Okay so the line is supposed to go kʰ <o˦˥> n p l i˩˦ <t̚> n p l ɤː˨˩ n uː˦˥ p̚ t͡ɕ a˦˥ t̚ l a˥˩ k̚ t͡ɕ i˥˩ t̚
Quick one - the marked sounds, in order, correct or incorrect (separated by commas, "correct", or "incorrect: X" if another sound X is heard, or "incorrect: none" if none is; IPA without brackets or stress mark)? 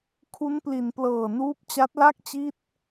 incorrect: u˦˥, incorrect: none